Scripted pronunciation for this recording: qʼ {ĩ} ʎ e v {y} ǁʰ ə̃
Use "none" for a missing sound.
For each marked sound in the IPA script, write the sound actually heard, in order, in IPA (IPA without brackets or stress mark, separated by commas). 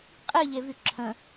i, y